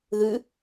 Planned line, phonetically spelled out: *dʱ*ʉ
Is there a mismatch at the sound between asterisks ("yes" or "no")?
yes